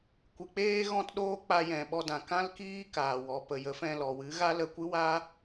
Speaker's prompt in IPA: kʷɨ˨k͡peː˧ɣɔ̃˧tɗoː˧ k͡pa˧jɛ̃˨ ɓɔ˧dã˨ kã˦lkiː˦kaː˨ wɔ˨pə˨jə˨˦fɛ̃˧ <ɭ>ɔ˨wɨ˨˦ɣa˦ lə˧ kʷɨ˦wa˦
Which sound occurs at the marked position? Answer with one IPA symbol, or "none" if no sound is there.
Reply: l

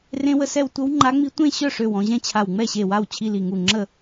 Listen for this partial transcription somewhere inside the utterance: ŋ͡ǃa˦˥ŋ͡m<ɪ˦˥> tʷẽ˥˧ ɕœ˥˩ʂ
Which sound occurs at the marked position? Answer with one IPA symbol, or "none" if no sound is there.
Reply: i˦˥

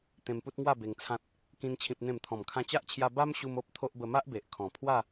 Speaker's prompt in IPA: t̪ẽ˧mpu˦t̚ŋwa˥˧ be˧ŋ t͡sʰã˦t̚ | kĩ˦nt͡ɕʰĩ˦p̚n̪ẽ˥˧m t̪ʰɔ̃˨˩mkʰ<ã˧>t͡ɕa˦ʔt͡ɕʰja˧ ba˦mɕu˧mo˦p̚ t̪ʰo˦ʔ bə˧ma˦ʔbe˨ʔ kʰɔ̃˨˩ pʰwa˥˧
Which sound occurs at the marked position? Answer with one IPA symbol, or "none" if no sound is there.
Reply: ã˧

